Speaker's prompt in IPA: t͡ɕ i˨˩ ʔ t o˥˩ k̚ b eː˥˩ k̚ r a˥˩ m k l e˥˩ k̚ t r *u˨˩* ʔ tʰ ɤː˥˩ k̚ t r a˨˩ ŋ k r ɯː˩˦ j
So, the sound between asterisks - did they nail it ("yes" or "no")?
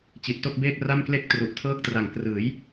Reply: yes